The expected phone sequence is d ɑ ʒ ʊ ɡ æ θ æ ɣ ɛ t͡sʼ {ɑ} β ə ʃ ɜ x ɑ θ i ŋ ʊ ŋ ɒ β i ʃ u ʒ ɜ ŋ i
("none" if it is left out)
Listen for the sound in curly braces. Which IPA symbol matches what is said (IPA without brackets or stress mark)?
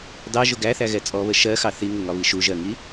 ɔ